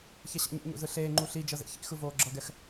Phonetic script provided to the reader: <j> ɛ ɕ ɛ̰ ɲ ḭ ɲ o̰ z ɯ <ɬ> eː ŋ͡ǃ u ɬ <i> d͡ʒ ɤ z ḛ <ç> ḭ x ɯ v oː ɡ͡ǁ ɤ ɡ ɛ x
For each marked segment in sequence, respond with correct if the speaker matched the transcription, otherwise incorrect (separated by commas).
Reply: incorrect, correct, correct, correct